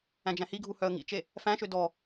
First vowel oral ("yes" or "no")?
no